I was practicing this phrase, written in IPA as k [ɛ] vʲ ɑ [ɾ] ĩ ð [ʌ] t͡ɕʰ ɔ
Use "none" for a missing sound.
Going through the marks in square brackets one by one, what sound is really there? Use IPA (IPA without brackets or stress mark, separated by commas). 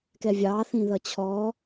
ɛ, θ, ʌ